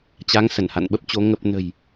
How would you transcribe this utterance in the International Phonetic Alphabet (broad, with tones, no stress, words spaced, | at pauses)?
t͡ɕa˨˦ŋ sə˧˩nha̰˧˨nɓə˦˥p̚t͡ɕo˨˦ ŋə˨˩p̚nə̤˨˩j